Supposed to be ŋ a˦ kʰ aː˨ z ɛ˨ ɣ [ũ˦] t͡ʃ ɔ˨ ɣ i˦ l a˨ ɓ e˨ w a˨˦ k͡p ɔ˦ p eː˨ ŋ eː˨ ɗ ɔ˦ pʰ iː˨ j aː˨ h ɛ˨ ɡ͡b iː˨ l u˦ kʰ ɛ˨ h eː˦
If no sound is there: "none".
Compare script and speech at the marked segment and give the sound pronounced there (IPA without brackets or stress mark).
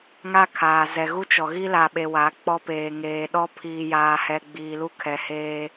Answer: u˦